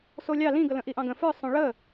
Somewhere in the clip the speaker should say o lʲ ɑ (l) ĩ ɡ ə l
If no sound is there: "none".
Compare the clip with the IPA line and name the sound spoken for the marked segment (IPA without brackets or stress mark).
l